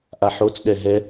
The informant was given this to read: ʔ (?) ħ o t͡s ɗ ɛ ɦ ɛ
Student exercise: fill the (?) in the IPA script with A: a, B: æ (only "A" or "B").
A